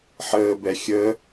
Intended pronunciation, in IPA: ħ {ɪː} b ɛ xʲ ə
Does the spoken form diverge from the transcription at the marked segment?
yes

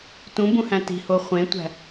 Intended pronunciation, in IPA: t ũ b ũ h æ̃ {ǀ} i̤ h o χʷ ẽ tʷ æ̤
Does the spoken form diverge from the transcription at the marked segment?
yes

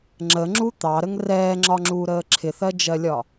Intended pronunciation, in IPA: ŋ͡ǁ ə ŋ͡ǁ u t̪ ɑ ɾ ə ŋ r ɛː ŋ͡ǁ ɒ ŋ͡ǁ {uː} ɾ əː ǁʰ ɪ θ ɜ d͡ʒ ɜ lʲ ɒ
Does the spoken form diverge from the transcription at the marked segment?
no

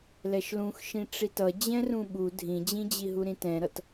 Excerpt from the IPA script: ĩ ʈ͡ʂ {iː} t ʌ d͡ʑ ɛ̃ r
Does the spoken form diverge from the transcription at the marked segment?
yes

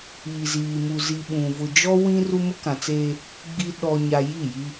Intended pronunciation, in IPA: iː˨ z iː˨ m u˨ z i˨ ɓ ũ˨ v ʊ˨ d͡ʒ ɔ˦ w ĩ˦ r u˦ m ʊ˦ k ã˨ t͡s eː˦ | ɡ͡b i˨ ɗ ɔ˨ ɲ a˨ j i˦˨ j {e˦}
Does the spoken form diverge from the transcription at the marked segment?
yes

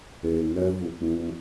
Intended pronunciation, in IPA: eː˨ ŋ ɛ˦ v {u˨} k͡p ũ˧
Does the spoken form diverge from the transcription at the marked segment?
no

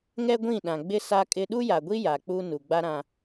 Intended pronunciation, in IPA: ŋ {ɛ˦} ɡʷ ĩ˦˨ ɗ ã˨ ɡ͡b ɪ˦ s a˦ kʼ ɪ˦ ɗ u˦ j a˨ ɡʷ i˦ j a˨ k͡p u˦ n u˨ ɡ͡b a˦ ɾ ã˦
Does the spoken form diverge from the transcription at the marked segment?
no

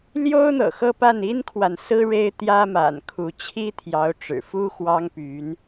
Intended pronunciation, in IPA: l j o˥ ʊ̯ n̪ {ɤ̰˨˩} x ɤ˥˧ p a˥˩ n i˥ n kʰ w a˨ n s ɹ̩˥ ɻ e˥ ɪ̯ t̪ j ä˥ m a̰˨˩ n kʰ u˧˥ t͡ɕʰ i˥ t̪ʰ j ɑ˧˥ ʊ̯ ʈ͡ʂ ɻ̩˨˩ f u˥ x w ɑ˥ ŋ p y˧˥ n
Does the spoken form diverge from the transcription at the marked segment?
no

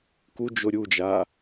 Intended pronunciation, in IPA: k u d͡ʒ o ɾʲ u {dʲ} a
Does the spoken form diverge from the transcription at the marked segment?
yes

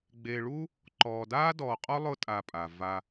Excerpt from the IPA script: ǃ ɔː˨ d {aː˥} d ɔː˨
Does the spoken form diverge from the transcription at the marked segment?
no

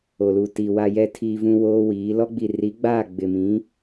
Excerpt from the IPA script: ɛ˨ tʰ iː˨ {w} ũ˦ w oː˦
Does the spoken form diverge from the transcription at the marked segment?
yes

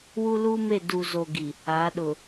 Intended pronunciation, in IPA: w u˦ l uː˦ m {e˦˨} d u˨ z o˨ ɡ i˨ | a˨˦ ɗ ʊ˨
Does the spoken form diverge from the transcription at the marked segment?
no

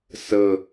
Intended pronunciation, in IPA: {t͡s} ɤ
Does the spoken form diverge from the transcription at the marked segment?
yes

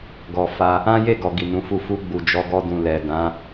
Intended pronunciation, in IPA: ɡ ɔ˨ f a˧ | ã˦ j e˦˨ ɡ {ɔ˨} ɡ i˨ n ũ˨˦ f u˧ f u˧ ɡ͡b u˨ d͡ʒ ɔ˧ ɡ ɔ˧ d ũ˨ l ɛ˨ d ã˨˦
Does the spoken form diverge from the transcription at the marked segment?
no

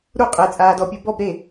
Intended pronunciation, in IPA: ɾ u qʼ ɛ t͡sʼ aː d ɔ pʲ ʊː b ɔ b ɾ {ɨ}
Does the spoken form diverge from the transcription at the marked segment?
yes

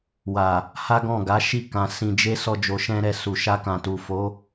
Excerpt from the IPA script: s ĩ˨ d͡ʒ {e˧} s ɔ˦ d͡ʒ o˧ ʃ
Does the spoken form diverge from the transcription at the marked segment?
no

